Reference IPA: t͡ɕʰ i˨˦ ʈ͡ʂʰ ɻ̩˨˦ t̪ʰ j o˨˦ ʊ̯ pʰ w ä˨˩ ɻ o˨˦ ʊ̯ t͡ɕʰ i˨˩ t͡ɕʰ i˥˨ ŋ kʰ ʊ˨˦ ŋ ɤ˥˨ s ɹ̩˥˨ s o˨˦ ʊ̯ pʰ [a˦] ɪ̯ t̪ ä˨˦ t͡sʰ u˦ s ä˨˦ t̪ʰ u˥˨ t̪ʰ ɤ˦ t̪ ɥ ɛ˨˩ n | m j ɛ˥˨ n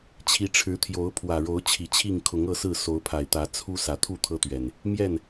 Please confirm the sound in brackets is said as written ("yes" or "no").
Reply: no